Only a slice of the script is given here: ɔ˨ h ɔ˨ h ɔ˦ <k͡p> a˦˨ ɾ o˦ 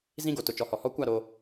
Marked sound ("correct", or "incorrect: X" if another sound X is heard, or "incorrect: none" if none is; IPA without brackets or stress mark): incorrect: kʷ